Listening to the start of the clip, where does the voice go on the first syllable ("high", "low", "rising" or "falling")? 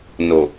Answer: low